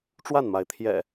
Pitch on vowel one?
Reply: falling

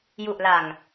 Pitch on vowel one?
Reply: low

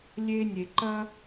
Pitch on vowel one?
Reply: high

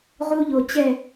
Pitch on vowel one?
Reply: high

